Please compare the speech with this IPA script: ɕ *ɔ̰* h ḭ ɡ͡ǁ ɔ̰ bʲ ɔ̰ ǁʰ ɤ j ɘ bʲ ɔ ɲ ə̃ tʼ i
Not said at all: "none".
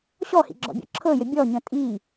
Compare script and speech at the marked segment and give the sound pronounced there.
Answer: ɔ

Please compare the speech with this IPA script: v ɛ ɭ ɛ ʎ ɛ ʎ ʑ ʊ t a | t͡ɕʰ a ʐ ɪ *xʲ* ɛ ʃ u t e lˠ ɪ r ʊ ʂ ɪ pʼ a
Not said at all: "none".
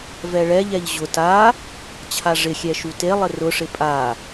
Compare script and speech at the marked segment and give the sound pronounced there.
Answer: xʲ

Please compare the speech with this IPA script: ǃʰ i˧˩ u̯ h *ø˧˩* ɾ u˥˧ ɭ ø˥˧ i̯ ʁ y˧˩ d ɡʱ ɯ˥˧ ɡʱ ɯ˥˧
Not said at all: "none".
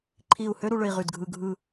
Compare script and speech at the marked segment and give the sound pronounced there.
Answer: ø˥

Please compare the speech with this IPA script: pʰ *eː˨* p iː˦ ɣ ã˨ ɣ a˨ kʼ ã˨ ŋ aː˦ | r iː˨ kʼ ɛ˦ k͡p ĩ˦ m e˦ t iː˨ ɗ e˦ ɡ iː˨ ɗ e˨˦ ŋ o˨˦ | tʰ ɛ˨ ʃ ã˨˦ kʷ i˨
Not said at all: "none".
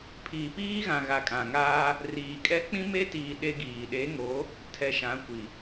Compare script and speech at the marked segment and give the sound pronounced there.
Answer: iː˨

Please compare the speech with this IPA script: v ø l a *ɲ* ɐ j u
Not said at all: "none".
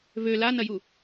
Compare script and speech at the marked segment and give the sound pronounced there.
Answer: n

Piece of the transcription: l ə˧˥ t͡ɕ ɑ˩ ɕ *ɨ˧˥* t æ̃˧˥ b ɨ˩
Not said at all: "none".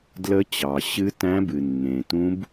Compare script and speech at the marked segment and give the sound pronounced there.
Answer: ɨ˧˥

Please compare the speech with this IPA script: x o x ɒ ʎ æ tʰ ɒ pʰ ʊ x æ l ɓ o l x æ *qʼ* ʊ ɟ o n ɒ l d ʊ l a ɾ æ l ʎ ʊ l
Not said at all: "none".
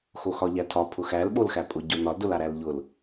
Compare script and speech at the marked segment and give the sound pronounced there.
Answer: pʼ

